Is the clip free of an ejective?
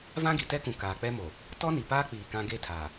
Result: yes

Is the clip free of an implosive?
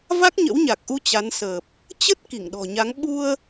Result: no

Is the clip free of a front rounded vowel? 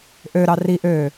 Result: no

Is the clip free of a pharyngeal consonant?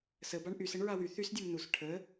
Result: yes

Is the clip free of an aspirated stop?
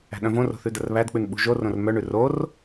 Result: yes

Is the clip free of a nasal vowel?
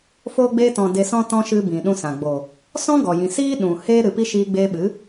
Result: no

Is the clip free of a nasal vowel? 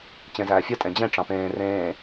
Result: no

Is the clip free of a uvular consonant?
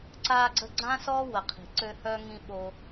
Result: no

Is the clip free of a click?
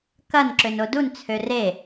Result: no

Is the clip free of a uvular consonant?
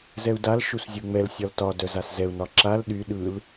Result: yes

